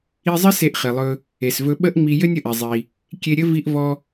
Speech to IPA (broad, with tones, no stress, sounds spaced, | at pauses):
i˧ zˤ ɘ˥ s e˧ ʔ χ i˩ lˠ ɵ˧ | e˩ s v ɵ˧ ɓ ə˥ ʔ ŋ͡m i˧ j ɘ˥ nʲ ə˩ ʔ e˩ zˤ i˩ | kʲ e˧ ɾʲ ɘ˥ v i˧ ʔ v ɔ˧